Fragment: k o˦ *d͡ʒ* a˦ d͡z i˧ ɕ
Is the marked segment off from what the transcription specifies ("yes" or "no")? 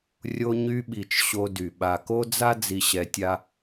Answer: yes